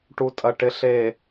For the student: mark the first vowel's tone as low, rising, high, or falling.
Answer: low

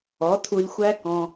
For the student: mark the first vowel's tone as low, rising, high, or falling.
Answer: rising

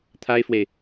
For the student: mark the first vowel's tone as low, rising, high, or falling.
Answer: high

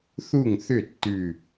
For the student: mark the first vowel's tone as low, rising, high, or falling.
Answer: falling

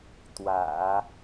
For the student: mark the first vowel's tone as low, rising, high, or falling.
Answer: low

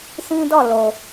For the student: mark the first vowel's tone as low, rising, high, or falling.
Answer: high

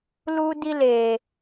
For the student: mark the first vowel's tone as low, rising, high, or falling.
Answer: high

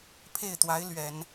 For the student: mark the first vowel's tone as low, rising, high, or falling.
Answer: falling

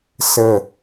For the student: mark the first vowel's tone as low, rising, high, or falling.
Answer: falling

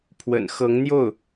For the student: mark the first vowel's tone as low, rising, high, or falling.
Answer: low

